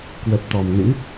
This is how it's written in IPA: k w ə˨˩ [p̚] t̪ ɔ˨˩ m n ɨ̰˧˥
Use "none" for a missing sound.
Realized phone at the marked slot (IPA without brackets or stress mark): p̚